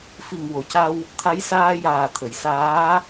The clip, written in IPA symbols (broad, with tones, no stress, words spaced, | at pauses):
fi˨˩ŋwo˨˩˨ca˧w | t̪ʰa˧˥jsaː˧jaː˨˩t̪ʰə˨˩˨j saː˧˥